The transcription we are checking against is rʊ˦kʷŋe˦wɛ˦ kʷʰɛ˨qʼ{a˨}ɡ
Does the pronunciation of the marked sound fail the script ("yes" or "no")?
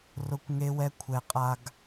no